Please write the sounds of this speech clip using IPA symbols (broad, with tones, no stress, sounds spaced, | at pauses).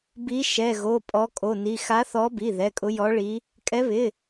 b i˨˦ ʃ ɛ˩˧˩ ɣ o˩˧˩ pʼ ɔ˨˦ kʼ o˩˧˩ n i˩˧˩ x a˨˦ θ ɔ˨˦ b i˩˧˩ ð ɛ˩˧˩ kʼ ʊ˨˦ j ɔ˨˦ ɭ i˨˦ | kʼ ɛ˨˦ β ɪ˩˧˩